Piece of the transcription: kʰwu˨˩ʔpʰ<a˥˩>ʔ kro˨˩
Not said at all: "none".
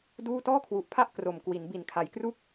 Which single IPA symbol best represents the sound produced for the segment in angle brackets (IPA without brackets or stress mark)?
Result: a˥˩